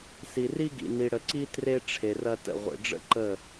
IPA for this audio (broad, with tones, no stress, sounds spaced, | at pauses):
s i˨ r i˦ ɡ ḭ˨ n i˨ ɽ ə˨ ǀ i˦ t r e˦ ʈ͡ʂʰ e˨ r ɐ˦ t ə̰˦˨ ʁʷ ḛ˨ ɖ͡ʐ ə̰˦ ǃ ə˦˨